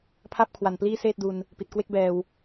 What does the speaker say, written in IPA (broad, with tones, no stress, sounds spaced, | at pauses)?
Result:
pʰ a˥˩ p̚ kʰ w a˨˩ n p l iː˥˩ s eː˥˩ t̚ d u˧ n | p i˨˩ t̚ k w e˥˩ k̚ b ɛː˧ w